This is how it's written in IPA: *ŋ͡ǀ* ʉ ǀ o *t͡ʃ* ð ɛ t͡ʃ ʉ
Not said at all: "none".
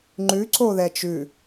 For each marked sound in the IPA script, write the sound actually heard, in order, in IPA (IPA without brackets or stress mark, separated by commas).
ŋ͡ǃ, none